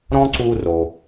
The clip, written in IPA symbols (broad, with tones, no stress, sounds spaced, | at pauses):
ɾ ɔ̃˥ ǀ u˧ r o˩